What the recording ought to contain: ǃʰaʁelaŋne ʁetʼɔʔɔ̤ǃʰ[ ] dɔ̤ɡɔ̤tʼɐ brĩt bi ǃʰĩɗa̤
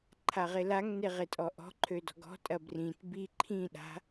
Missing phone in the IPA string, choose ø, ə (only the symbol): ø